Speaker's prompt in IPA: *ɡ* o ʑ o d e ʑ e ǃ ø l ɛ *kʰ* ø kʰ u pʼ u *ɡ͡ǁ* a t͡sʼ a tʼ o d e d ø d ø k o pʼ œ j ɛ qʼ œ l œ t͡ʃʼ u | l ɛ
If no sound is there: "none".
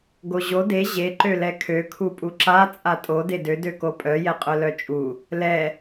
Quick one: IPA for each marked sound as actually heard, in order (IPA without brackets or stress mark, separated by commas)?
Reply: ɡ, kʰ, ǁ